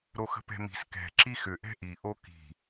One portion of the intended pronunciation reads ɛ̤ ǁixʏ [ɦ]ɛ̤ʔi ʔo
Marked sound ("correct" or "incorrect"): incorrect